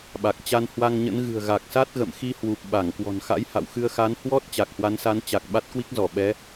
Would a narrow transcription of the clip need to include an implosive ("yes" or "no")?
yes